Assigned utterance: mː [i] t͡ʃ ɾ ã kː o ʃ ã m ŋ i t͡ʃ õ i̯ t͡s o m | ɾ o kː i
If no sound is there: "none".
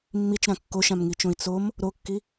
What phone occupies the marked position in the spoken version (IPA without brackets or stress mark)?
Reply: i